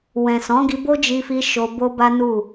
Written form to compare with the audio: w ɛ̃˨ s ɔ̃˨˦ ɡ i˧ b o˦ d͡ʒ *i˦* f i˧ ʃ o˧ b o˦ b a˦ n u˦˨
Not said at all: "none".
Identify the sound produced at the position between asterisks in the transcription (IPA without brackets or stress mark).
i˧